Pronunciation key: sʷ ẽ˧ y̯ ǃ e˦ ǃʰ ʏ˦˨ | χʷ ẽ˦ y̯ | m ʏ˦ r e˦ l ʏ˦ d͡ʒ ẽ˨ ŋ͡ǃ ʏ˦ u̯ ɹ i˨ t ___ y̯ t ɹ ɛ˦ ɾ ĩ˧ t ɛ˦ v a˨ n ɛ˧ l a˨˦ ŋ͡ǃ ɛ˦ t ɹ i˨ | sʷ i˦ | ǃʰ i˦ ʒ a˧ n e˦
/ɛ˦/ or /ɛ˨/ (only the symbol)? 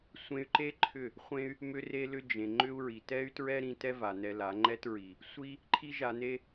ɛ˦